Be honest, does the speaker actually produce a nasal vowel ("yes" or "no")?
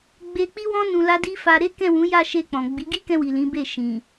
yes